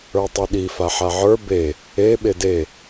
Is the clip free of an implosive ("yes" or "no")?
no